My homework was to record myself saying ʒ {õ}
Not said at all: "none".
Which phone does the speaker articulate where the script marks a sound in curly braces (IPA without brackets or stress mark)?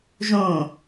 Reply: õ